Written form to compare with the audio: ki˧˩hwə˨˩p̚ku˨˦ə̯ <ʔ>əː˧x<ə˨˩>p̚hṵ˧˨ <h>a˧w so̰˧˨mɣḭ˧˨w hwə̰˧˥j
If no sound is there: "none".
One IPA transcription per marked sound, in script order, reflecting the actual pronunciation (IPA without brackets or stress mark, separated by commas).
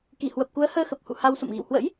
h, ə˨˩, h